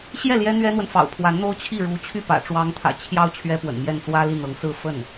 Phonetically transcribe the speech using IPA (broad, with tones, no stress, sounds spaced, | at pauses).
ɕ j ɛ˥˩ l j ɛ˥ n̪ ɥ ɛ˥ n̪ w ə˨ n f ɑ̰˨˩ ʊ̯ pʰ w a˧˥ n n̪ o˥ ʊ̯ t͡ɕʰ i˥˩ ɻ u˧˥ t͡ɕʰ y˥˩ p ä̰˨˩ ʈ͡ʂ w ɑ˧˥ ŋ t̪ʰ ä̰˨˩ t͡ɕʰ j ɑ˥ ʊ̯ t͡ɕʰ ɥ ɛ˥ p w ə̰˨˩ n m j ɛ˥˩ n t͡s w ä˥ l i˥˩ n̪ ɤ˧˥ ŋ s ɹ̩˥˧ f ə˥˩ n